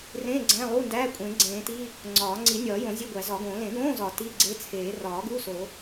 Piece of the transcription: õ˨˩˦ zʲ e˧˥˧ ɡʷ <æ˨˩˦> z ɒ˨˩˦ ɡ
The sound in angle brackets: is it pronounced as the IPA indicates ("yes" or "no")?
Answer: yes